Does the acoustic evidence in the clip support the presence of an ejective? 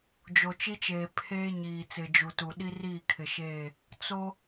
no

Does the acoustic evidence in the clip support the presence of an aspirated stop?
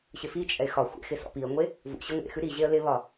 no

